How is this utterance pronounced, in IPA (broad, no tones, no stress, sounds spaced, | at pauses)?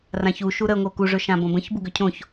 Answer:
r ã ç u ʃ u ɾ ə ŋʷ ə o̯ k u ʐ ɵ ʃ ã b õ b ə̃ ç b u ɡ ʏ cʰ õ ç